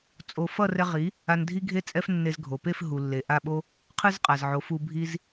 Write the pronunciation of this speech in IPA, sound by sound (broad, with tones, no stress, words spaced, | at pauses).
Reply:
t͡sʼo˧ fʌ˦˨rɛ˧ ʁi˨˦ | a˧ndʱi˦ɡʱe˦ t͡sʼɛ˧f nːe˧z ɡʱo˨pe˦˨f ɦu˨lːe˨ ʔa˦˨ɓo˦ | qʰɯ˦zqʼa˨zʕo˨˦f u˧ bʱi˦z